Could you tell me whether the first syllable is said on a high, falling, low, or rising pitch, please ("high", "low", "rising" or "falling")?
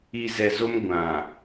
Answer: low